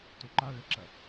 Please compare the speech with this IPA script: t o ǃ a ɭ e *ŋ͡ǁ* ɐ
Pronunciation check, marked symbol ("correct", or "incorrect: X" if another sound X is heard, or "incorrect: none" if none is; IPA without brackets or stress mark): incorrect: ǁ